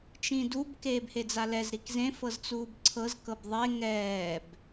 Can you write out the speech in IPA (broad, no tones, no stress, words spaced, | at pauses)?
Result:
t͡ʃĩdub keːbhed͡zalɛz ɾikzẽ fɤzt͡suːbǀʰɤz kɤbðˤe ŋɛːb